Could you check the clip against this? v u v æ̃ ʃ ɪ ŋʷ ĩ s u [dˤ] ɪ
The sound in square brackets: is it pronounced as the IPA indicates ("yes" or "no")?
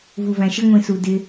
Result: no